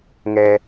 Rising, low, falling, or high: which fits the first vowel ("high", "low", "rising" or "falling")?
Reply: low